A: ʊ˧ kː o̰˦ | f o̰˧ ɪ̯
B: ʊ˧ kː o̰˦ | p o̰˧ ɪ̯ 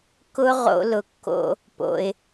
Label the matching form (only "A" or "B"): B